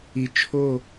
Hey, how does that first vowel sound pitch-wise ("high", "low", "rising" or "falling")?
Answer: rising